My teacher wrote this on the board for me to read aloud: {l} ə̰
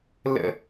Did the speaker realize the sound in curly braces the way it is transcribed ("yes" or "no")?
yes